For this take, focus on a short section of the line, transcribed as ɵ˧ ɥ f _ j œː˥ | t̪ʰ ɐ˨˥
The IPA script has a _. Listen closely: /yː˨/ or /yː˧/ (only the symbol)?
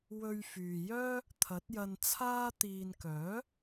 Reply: yː˨